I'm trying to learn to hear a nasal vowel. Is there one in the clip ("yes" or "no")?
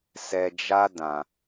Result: yes